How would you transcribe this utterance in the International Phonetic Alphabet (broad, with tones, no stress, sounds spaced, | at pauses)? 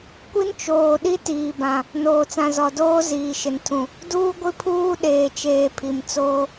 kʷ i˦ n t͡ʃ oː˨ ɗ i˦ t iː˨ b ã˨ | n oː˨ t͡s ã˨ z ɔ˨ d oː˦ z iː˨ ʃ ɪ˨ n tʰ ũ˨ | d uː˦ ɡʷ i˦ pʰ uː˦ ɗ eː˨ t͡ʃ eː˨ pʰ i˨ m t͡s oː˦